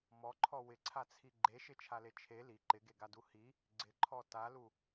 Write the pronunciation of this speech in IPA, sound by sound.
mɔǃʰɔ wɪǀʰat͡sʰi ɡ͡ǃeʃɪt͡ʃʰale t͡ʃʰe li ǃɪɡeɡadu hi | ɡ͡ǀɪǃʰɔ talu

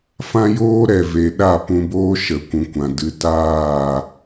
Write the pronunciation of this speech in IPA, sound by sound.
fã˦joː˦ɾɛ˨ve˨ ɗa˦˨pũ˧boː˦ ʃə˨ kʷũ˨kʷã˨dɨ˧ taː˦˨

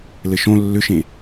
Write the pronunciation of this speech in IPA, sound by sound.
lɘʃõ lːʏʃẽ

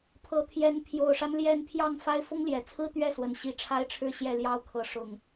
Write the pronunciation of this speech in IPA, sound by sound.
pʰɤ˨˦t̪ʰjɛ˨˦n pʰjo˨˩ʊ̯ʂa˦n ljɛ˥˨n pʰjɑ˥˨ŋfa˦ɪ̯ fʊ˦ŋljɛ˨˩t͡sʰɹ̩˦ t̪ɥɛ˥˨swə˨˩nɕi˨˦ ʈ͡ʂʰa˦ɪ̯ʈ͡ʂʰɻ̩˥˨ɕjɛ˥˨ ljɑ˥˨ʊ̯kʰɤ˨˦ ʂʊ˨˩ŋ

